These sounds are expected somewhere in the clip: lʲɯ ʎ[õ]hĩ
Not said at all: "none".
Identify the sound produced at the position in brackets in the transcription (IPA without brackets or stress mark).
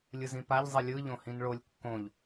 õ